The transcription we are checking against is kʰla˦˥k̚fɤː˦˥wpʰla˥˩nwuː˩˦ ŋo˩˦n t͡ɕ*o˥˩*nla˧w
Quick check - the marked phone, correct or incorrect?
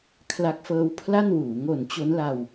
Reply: incorrect